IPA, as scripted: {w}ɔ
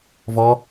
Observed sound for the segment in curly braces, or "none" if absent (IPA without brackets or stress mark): v